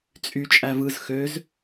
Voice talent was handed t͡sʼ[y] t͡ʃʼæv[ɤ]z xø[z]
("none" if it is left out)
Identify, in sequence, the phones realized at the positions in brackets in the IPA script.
y, ɯ, z

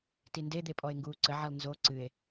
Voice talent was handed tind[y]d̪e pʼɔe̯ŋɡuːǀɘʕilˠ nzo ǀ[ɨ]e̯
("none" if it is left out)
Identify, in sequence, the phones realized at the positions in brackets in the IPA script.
e, ɨ

